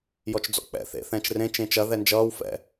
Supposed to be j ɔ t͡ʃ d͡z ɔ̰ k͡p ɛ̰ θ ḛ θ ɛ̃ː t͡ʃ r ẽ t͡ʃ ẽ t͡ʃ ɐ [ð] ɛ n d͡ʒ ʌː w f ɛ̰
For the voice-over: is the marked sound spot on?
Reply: yes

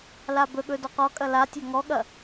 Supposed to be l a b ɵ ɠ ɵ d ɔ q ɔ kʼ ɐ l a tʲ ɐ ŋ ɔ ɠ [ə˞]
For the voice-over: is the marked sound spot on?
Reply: no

